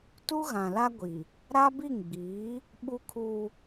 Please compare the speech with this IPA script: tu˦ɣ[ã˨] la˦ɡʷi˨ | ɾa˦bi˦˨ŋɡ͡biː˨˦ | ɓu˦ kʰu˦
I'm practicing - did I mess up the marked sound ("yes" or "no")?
no